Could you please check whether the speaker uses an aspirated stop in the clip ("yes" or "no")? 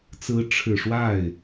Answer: yes